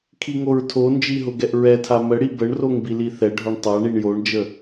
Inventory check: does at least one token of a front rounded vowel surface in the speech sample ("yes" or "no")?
no